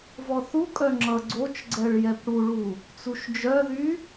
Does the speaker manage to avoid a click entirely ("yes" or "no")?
no